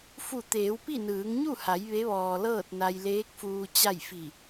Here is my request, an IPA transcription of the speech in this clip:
fu˧˩t̪eː˩˧wpi˥˨ nɯː˩˧ŋɲu˥˨ha˩˧j ʋe˧˥ʋɔː˩lɤː˥˨t̚na˧j leː˧˥k̚fuː˧ t͡ɕa˥˨j fi˧˩

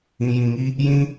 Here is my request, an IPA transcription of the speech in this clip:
ĩ˧jĩ˧ŋi˦ | jĩ˦

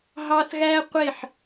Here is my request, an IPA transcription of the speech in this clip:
ɦɑ˦θɣæ˦qʷe˦˨ħ

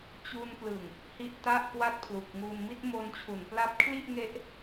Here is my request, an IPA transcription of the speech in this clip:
t͡ɕu˧nplɯ˨˩ŋ | hi˥˩ʔta˥˩ʔkwa˥˩t̚ pʰlu˨˩k̚ ŋu˧n mi˥˩t̚mo˧nt͡ɕʰu˩˦npla˦˥p̚ kʰli˥˩ʔŋe˦˥ʔ

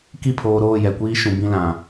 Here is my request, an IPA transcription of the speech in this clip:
ki˦˨pʰoː˨ɾoː˦˨ jɛ˨kʷiː˦ ʃũ˨ bĩ˦lã˨

